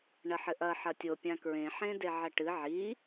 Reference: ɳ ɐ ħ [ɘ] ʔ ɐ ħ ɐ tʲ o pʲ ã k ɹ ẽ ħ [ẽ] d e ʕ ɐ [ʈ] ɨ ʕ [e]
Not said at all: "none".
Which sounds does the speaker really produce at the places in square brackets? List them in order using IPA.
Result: ɘ, ẽ, ʈ, i

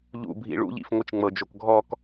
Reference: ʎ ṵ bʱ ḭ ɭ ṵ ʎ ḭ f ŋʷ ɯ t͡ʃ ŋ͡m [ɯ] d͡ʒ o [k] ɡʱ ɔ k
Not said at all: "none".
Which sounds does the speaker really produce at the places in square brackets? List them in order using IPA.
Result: ɤ, k

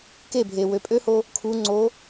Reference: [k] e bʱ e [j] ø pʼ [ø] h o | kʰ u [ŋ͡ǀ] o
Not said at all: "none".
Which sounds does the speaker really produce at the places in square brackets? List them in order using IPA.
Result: k, w, ø, ŋ͡ǀ

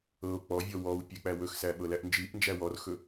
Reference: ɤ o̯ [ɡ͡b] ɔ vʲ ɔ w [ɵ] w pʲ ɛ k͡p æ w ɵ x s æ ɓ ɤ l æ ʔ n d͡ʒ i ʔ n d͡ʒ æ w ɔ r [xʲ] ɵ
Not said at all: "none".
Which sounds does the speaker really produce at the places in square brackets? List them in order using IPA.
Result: k͡p, ɔ, x

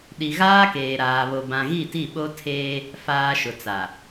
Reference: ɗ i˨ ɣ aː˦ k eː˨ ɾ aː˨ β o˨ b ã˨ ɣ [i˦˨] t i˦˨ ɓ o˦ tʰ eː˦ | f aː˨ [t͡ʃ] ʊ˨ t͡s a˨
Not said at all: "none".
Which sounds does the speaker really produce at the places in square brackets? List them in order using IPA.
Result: i˦˨, ʃ

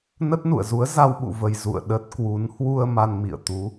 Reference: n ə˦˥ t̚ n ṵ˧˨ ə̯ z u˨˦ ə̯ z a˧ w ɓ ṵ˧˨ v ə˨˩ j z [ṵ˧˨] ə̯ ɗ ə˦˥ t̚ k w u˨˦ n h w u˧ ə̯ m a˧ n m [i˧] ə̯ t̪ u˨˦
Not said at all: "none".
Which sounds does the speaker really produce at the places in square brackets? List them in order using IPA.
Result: ṵ˧˨, ḭ˧˨

